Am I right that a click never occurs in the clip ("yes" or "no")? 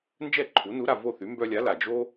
no